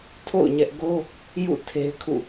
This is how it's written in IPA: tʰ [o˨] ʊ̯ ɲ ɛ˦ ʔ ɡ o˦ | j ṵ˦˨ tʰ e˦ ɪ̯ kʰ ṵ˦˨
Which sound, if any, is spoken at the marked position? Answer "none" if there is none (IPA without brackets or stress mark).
o̰˦˨